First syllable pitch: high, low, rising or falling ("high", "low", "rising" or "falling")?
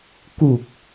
low